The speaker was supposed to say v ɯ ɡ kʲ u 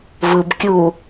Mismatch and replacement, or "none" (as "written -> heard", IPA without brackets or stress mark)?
ɡ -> b